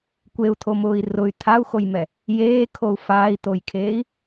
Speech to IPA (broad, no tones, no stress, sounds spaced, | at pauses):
kʷ e u̯ t̪ʰ o m ʊː i̯ r ʊ y̯ t̪ʰ a u̯ x o j m ɛ | j eː kʰ o u̯ f aː i̯ t̪ o j kʰ eː i̯